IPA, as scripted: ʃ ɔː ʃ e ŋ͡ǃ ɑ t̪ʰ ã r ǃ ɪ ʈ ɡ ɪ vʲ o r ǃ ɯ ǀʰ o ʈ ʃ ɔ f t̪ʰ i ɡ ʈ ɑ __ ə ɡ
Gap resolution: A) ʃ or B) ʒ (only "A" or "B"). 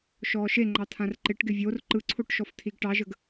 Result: B